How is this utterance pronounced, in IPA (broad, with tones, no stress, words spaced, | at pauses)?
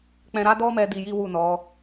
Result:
k͡pɛ̃˧ɾa˦dɔ˦mɛ˧ di˧ji˦wu˦˨nɔ˨˦